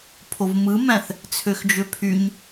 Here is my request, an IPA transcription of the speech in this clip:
pʰ o v m ɯ m æ̃ θ | t͡sʰ ø x d͡ʒ ø pʰ y ɲ

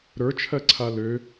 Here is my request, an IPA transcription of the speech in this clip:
ɾ ə˞ t͡ʃʰ ɜ ǀʰ a l ø

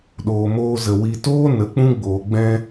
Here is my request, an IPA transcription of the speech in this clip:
ɗ oː˨ m oː˧ z ə˨ w i˨ t oː˦ n ə˨˦ k͡p ũ˦ ɡ͡b oː˨ ɡ͡b ɛ̃˧

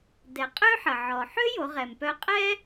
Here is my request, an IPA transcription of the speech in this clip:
d ɛ˩˧ qʼ ø˥ ħ ə˩ ʕ ɔ˩ ħ ø˥ j o˩˧ ʁ ɛ˩ m p œ˧ qʼ ɛ˥

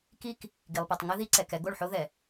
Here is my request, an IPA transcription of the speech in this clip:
k i˦ k | ɡ i˨ lˠ p ɛ˨ tˤ ŋ ɘ˦ ð i˦ ǀ ɛ˨ k ɛ˦ ɡ o˦˨ ɭ ħ o˦ ð ɛ˨

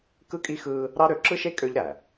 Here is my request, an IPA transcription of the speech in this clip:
k ɯ˦ kʼ i˦ x ɯː˦ | ɾ ɑ˦ ɾ ø˨˦ ǁ ɯ˦ ʃ e˦ kʼ ø˦ ʎ ɾ æ˨

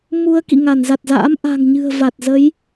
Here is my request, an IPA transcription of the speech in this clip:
m u˧ ə̯ k ḭ˧˨ ŋ a˧˩ n z a˨˩ t̚ z a̰ː˧˥ m ʔ a̤˨˩ ŋ ɲ ɨ̤˨˩ ə̯ v a˨˩ t̚ z ə˨˦ j

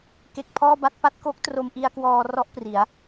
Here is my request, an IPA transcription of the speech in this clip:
k e˦˥ k̚ pʰ ɔː˥˩ b a˥˩ t̚ p a˥˩ t̚ k o˦˥ k̚ t r o˧ m ʔ i˧ a̯ k w ɔː˧ r ɔ˥˩ ʔ p r i˩˦ a̯

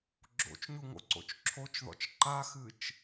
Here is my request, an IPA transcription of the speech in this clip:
ɡ͡ǁ o̰ t͡ʃ ɲ u ŋ o̰ ǀ o̰ t͡ʃ ǁʰ o t͡ʃ ð ɔ̰ t͡ʃ ǃ a x ɨ t͡ʃ

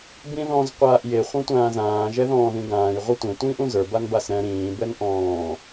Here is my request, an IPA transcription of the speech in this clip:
b ĩ ð ɔ̃ z qʷ aː ʔ j e χʷ ɛ̃ tʷ ãː z ãː ʒ ɛ ð ɔ̃ː ð ĩ ɡ ãː j ʁʷ ɛ tʷ ẽ tʷ ĩː ʔ ũ z ə˞ b a n b a s ɾ ɛ̃ ɾ ĩː b ɛ n ʔ ɔ̃ː

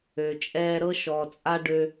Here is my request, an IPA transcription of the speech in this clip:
ø˨ t͡ʃʼ ɛː˧ ɾ ɤ˦ ʃ ɔ˨ t͡sʼ a˦ ɖ ø˧

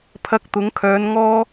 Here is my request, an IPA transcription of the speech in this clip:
pʰ ɐ˧ k̚ t̪ ʊ˨˧ ŋ kʰ œː˨˧ n ŋ ɔː˥

